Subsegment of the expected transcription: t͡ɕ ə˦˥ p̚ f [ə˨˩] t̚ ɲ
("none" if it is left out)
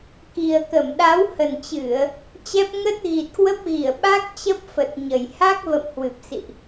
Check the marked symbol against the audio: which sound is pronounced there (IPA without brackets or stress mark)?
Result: ə˨˩